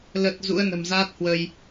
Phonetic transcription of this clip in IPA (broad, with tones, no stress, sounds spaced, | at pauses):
l ə˨˩ t̚ z ṵ˧˥ ə̯ n ə̤˨˩ m z aː˦˥ t̚ h w ə˧ j